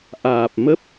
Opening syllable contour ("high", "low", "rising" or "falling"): low